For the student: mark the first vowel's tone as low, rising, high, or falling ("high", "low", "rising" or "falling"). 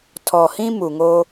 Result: low